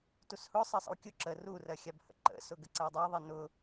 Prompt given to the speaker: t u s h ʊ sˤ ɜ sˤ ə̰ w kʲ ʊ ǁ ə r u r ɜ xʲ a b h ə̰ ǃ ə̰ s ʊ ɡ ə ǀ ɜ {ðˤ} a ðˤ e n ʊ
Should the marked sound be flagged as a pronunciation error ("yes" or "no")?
yes